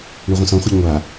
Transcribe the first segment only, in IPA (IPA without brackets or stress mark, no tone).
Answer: ɳ